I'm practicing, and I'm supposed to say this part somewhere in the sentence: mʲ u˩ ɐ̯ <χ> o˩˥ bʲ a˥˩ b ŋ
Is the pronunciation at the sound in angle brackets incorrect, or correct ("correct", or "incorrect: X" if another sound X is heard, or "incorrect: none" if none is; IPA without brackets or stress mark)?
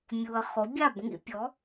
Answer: correct